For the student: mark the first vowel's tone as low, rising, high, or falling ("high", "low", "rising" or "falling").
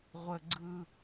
low